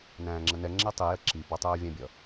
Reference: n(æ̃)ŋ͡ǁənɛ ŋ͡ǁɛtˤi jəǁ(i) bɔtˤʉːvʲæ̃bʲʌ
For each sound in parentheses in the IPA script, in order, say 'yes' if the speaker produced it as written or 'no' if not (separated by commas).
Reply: no, yes